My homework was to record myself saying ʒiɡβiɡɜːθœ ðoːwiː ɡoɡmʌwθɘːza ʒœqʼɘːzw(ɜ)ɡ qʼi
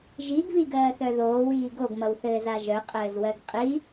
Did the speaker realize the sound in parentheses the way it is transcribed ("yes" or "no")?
yes